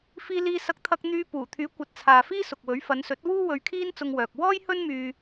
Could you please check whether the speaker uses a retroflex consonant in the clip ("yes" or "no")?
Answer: no